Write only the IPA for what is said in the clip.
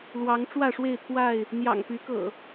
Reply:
l w ɑ˨˦ ŋ ʈ͡ʂ w ä˥˨ ʂ w e˥˨ ɪ̯ t̪ʰ w a˥˨ ɪ̯ | n̪ j ɑ̰˨˩ ŋ p y˨˦ k ɤ̰˨˩

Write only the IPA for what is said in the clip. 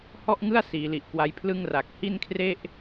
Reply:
h ɔ˥˩ ʔ ŋ ɯ˥˩ a̯ s iː˩˦ l i˨˩ ʔ k w a˦˥ j pʰ l ɯ˥˩ ŋ r a˨˩ k̚ h i˥˩ n kʰ r e˥˩ ʔ

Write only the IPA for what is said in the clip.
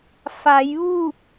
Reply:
f a˩˧ j ʋ uː˥˨ p̚

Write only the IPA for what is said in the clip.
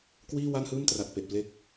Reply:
k w iː˥˩ w a˥˩ n h ɯː˥˩ m t r a˨˩ t̚ p e˨˩ ʔ p l e˥˩ k̚

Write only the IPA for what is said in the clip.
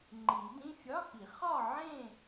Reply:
ŋ͡ǃ i˨˩˦ d ĩ˧˥˧ fʲ ɒ˧˥˧ x i˨˩˦ χ ɒ˥˨ ʕ ẽ˥˨

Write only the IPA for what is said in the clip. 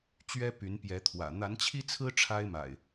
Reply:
t͡ɕ ɥ ɛ˦ p y˨˦ n p j ɛ˨˦ t̪ʰ w ä̰˨˩ n̪ a˨˦ n t͡ɕʰ i˦ t͡sʰ ɹ̩˦ ʈ͡ʂʰ a˦ ɪ̯ m a̰˨˩ ɪ̯

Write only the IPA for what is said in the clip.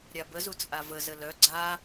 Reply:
ɾʲ a b ə z u t͡sʼ a v ə z ə l œ ɡ͡ǀ a

